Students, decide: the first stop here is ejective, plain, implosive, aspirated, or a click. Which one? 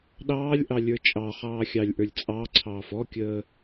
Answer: implosive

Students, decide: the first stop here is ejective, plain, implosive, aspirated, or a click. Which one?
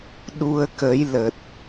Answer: implosive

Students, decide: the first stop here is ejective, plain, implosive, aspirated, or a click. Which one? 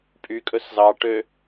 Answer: ejective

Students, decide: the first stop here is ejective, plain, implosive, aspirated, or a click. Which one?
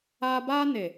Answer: plain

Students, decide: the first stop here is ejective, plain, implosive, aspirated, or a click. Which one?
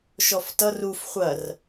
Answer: plain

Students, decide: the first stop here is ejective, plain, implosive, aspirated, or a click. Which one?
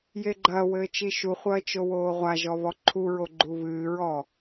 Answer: click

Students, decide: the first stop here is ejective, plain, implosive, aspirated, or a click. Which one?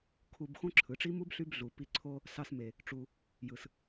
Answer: aspirated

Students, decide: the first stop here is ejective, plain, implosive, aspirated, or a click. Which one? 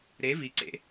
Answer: click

